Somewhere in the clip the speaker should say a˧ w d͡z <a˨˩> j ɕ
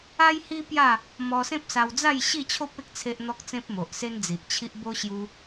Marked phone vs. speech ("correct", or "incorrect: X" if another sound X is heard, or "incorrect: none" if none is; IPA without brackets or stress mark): incorrect: a˥˧